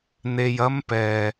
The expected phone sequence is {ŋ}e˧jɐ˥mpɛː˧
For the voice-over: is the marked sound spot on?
no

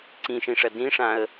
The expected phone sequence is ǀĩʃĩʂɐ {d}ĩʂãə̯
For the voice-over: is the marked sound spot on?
yes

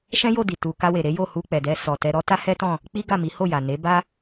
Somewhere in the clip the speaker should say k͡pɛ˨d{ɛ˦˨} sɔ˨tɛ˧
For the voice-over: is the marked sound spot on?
no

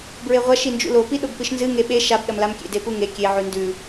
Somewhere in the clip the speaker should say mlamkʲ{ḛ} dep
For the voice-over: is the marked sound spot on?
yes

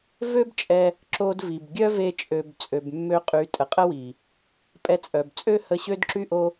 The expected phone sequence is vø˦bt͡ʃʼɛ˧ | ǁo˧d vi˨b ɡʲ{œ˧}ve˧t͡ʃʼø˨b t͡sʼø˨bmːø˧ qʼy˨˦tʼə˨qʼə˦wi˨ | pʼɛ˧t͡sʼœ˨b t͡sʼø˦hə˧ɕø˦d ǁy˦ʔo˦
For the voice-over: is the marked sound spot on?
no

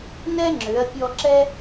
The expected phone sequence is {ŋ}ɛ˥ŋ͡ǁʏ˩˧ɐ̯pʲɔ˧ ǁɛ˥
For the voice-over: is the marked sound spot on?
no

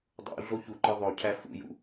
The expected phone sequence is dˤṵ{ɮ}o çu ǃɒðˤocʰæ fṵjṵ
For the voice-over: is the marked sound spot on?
yes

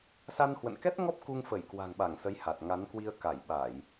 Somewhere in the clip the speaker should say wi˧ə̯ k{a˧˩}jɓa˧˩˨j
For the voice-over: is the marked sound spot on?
yes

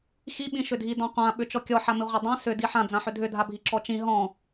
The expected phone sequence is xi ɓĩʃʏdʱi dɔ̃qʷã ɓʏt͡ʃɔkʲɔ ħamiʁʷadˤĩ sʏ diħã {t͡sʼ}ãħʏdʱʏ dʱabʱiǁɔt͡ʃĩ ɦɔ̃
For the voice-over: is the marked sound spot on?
no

